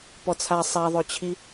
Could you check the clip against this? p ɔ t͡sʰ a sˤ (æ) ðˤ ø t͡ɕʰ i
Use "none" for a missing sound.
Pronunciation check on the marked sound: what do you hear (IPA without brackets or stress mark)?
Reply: a